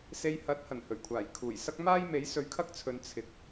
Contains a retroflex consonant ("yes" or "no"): no